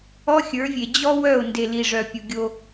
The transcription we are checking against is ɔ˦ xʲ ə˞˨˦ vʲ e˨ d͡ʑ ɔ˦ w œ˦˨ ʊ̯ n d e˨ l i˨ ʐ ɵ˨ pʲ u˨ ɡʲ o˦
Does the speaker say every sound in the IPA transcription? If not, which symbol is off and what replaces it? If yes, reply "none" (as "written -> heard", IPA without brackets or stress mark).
ɵ˨ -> œ˨